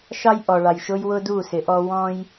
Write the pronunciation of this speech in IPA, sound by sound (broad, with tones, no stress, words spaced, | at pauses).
ʃɑ˦jʔɔ˨ɭɑ˨j ʃʊ˦jwʊ˦du˦˨ sɪ˨˦ʔɔ˦ wɔ̃˦j